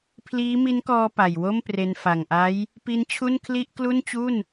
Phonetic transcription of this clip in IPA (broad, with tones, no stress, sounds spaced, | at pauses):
pʰ l iː˦˥ m i˦˥ n k ɔː˧ p a˨˩ j w o˥˩ m p r e˧ n f a˨˩ ŋ ʔ a˦˥ j | p i˦˥ n t͡ɕʰ u˥˩ n kʰ l i˥˩ ʔ k l u˥˩ n t͡ɕ u˥˩ n